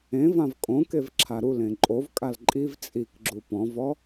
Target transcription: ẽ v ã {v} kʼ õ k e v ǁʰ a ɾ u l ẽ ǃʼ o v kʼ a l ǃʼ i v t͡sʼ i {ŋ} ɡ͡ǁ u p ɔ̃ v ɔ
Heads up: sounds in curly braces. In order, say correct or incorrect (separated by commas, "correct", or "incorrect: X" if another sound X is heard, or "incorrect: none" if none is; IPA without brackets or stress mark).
correct, incorrect: k